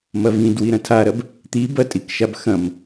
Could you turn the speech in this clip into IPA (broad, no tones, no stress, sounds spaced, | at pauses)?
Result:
m ɐ v ĩ d w i ɾ ɐ̃ tʰ a ɾ ɐ b | t̪ i b ɐ tʼ i k ʃ a b x ɐ̃ m